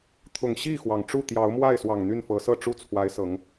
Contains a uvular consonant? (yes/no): no